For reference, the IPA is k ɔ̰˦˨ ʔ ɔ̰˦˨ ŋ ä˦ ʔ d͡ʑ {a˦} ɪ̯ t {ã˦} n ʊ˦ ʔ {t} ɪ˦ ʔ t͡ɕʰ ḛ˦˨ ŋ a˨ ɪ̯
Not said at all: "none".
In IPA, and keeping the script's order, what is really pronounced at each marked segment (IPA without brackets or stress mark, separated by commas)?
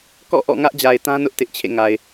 a˨, ã˦, t